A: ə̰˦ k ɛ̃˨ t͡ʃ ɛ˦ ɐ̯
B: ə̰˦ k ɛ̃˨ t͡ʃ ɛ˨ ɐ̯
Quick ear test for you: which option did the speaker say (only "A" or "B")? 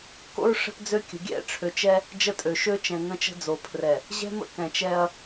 A